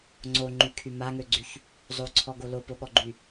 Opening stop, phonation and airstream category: click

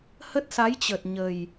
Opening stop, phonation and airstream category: plain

